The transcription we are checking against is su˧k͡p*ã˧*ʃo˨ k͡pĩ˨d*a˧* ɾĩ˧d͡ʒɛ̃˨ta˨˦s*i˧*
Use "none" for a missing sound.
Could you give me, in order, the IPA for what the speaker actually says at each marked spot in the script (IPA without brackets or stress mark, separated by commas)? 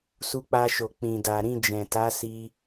a˧, a˨, i˧